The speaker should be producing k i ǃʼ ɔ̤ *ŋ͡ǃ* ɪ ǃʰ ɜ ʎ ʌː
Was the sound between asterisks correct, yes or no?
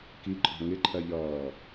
no